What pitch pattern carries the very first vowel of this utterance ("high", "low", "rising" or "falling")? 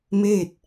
falling